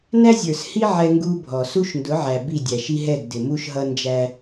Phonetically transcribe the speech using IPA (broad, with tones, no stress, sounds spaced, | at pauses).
n æ˦ zʲ ə˞˨ s h i˦ ʕ ɛ˦ ŋ ɡ u˦ bʱ ɔ˨ s u˦ ʃ n d ʊ˨˦ ʕ æ˨ b i˦˨ dʲ æ˨ ʃ i˦ ɦ ɛ˦˨ ɡ d ɪ˨ m u˦ ʃ ɦ ʌ˦ n d͡ʒ æ˦